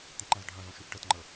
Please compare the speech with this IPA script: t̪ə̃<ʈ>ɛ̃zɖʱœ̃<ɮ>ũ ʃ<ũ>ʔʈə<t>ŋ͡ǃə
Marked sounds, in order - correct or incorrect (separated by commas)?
incorrect, incorrect, incorrect, correct